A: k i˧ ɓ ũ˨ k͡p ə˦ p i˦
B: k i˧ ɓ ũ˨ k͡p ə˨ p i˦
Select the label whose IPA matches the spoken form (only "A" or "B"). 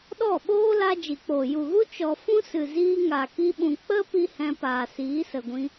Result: A